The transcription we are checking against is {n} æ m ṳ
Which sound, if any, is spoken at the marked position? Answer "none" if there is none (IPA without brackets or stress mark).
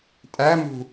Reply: tʼ